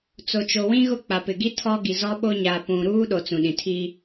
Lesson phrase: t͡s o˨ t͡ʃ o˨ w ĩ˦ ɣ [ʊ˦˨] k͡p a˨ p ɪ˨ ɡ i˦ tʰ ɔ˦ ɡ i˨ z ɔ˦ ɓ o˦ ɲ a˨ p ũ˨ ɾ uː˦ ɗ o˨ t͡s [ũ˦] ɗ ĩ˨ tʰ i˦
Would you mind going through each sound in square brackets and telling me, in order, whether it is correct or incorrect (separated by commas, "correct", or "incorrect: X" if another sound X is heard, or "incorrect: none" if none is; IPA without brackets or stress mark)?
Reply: correct, incorrect: ũ˨